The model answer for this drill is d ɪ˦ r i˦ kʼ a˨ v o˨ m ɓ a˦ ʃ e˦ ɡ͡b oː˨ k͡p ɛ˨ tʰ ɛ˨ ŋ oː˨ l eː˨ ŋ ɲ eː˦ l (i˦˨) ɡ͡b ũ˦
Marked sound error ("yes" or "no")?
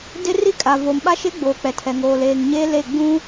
yes